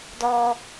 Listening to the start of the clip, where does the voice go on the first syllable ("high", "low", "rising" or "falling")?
high